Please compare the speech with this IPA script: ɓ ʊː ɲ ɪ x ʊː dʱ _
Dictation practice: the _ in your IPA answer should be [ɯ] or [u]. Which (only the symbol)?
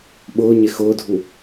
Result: u